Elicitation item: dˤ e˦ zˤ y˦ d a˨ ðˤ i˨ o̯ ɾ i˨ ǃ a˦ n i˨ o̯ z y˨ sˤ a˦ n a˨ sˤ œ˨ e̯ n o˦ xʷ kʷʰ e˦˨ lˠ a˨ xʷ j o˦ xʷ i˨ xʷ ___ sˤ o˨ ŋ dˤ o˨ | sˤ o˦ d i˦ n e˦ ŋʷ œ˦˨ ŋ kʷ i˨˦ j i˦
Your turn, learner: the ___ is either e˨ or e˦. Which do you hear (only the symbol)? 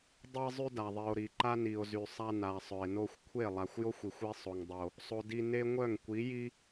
e˦